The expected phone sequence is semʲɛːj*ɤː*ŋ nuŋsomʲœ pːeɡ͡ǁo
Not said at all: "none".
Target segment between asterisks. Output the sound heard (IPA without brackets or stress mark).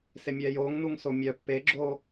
oː